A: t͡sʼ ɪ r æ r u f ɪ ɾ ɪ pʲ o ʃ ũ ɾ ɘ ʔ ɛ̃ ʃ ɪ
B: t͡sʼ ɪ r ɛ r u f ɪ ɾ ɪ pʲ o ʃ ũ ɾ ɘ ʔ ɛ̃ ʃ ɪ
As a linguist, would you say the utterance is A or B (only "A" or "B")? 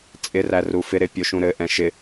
A